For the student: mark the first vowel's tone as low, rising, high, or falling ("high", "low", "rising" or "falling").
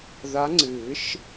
rising